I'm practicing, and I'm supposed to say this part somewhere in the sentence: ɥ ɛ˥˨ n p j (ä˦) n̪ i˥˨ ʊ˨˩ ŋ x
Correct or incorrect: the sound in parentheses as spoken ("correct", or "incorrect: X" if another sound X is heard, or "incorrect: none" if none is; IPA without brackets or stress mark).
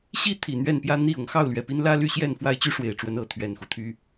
correct